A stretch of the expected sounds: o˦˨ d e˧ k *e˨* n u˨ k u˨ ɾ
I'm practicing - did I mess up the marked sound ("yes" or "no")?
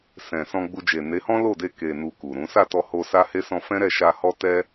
no